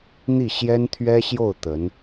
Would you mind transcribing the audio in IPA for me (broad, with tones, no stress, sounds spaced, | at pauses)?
n̪ i˥˩ ɕ j ɛ˥ n t̪ʰ ɥ ɛ˥ ɕ j o˥˩ ʊ̯ t̪ ə˧˥ n